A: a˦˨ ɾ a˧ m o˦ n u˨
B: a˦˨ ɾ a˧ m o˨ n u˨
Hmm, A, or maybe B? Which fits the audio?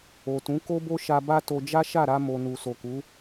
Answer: B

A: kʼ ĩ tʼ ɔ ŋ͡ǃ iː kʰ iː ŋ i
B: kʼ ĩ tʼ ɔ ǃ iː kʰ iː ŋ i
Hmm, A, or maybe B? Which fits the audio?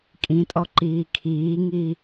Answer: B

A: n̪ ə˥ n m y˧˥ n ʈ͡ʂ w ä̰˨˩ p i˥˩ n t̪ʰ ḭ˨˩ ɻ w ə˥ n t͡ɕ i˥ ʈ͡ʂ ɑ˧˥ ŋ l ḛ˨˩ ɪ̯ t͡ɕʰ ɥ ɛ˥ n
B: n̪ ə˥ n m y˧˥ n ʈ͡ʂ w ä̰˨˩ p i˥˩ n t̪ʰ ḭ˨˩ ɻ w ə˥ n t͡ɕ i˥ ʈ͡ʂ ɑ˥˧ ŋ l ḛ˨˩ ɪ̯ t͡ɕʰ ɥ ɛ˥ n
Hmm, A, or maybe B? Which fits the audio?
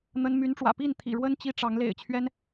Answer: A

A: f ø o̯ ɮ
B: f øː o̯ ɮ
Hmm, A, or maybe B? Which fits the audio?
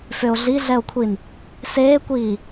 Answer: A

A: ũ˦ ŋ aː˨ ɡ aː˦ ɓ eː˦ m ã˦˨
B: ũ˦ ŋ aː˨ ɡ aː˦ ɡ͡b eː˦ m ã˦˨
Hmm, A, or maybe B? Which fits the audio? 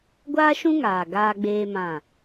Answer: B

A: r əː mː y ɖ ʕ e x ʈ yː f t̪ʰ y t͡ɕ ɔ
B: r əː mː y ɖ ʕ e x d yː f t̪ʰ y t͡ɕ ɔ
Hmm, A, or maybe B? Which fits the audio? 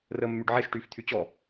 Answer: A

